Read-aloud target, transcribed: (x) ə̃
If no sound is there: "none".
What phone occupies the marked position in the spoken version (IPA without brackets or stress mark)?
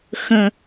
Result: x